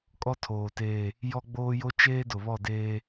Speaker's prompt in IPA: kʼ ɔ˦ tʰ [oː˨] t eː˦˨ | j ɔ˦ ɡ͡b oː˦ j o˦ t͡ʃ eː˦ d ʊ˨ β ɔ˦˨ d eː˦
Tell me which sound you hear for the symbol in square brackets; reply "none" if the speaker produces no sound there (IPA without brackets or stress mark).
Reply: oː˨